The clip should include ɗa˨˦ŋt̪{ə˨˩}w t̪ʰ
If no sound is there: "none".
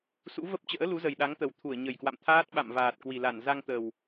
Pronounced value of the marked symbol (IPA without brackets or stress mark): ə˨˩